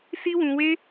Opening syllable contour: high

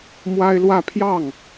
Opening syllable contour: high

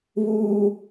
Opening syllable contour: high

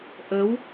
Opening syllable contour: rising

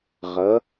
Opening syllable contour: rising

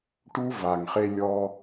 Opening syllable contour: high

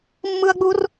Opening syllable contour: high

